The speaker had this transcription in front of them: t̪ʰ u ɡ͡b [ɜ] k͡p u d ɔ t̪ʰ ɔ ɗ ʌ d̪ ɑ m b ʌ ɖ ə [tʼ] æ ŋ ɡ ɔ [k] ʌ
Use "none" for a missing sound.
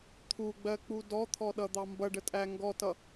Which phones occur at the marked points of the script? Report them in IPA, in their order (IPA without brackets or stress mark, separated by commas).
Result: ɜ, tʼ, t